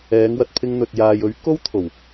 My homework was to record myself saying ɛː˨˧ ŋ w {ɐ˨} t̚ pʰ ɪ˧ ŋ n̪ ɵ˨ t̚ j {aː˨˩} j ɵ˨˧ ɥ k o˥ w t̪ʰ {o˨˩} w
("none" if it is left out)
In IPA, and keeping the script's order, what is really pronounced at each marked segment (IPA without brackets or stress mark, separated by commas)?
ɐ˨, aː˨, o˨˩